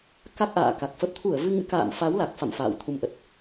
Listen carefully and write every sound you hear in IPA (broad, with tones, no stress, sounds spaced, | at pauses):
k a˦˥ k̚ ʔ a̰ː˧˨ k a˨˩ k̚ f ə˨˩ p̚ t̪ʰ u˧˩ ə̯ v ɨ˧ ŋ ɨ̰˧˥ k a̰ː˧˨ m f a˨˦ w l a˨˩ k̚ f a̰˧˨ m f a̰ː˧˨ w t̪ʰ u˧ m ʔ ə˨˩ t̚